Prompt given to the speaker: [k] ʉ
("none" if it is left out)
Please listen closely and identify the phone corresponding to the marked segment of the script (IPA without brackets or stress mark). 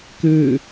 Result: k